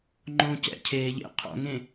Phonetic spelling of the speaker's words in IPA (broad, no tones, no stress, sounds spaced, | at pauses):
ŋ͡ǃ õː c ɛ̰ cʰ eː ʎ ḛ qʰ o̰ ŋ ẽ